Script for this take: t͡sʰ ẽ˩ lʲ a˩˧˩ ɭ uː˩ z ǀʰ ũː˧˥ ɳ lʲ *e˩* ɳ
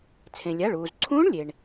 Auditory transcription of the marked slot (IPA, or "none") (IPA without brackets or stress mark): e˩